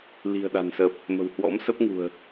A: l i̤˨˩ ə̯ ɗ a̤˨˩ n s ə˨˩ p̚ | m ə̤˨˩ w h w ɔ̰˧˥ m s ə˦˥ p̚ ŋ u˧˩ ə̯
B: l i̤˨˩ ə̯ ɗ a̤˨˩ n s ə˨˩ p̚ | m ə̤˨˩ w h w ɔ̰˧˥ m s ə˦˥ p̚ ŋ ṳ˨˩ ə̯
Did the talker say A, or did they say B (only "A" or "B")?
B